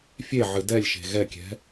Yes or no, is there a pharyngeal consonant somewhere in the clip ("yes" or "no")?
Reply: yes